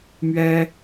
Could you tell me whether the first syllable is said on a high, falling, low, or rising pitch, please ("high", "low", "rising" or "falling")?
high